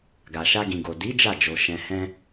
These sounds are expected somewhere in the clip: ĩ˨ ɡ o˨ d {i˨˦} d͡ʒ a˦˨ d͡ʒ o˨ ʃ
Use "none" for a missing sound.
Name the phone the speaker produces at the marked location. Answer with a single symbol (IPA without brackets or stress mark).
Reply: i˨˦